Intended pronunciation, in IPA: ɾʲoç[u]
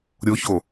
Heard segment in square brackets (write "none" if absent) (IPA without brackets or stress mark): o